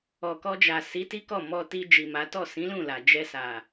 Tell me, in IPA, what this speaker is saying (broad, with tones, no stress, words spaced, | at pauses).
ɔ˨kɔ˧d͡ʒa˨ si˨˦ti˦kɔ˦˨ mɔ˧ti˧ d͡ʒi˨ma˨˦ tɔ˦˨sĩ˨˦lũ˦˨ la˨ d͡ʒɛ˧sa˨